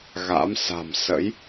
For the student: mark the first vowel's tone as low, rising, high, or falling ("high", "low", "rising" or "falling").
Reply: rising